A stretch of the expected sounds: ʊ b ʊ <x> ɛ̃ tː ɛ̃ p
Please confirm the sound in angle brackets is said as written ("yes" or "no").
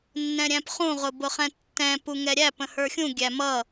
no